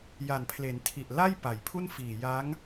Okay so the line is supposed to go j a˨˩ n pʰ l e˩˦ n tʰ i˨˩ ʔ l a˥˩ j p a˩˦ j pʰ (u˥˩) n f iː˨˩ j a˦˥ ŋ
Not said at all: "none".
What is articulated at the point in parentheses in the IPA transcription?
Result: u˥˩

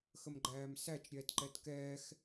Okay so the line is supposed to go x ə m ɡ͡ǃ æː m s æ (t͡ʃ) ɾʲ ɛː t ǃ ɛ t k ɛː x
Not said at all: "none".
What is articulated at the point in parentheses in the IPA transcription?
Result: t͡ʃ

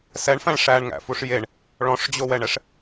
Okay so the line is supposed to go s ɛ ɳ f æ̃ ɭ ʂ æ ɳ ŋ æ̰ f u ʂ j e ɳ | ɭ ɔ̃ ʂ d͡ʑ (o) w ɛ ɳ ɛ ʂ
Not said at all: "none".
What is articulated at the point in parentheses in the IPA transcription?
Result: o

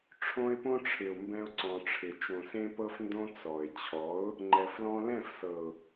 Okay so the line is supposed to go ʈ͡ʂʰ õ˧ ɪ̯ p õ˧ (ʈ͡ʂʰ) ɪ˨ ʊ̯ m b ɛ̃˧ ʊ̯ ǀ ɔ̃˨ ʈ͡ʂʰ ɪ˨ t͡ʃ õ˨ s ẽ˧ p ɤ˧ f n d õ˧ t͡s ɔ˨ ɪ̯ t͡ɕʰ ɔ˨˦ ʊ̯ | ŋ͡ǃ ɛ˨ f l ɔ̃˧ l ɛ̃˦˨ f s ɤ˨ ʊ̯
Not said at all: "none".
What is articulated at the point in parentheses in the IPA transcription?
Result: ʈ͡ʂʰ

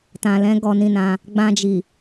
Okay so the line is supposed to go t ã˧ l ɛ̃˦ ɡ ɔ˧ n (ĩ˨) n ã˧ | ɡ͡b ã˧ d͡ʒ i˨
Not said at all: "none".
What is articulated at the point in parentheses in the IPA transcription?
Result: ĩ˧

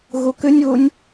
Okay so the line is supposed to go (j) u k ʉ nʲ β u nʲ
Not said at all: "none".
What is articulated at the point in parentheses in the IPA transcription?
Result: ɣ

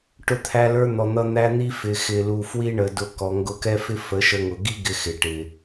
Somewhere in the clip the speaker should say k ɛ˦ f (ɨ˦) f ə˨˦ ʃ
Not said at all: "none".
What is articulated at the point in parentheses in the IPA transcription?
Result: ɪ˦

